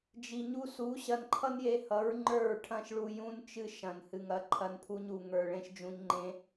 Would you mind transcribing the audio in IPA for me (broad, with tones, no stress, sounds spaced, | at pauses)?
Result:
d͡ʒ i˨ ɲ u˧ s u˨˦ ɕ ɐ˧ n ǃʰ ʌ˦ n j e˧ h ʌ˨˦ ɹ ŋ͡ǃ ə˞˦˨ ɹ ʈʰ ɐ̃˦ ʃ ɭ u˧ j ũ˧ n t͡ʃ ɨ˧ ʃ ɐ̃˨ n h ɨ˨ ŋ ɐ˨˦ ǃʰ ɐ˧ n pʰ u˧ ɲ u˨ ŋ ə˞˨ ɭ ẽ˧ ʃ d͡ʒ ũ˧ ɲ ŋ͡ǃ ẽ˧